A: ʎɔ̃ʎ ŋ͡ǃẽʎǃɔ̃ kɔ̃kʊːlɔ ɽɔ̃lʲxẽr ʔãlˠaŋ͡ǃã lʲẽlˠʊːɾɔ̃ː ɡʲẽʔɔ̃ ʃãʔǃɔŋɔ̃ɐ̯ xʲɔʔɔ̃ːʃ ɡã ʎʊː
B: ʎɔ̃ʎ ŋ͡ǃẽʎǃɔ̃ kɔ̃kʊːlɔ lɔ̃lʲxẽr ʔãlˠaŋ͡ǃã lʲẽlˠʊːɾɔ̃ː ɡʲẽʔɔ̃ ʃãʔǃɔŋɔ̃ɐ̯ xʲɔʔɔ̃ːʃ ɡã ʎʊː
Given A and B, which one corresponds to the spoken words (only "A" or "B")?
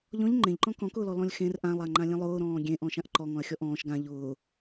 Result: B